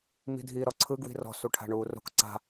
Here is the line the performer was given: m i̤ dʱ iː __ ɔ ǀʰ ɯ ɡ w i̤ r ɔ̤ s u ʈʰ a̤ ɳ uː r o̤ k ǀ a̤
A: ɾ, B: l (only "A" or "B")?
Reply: A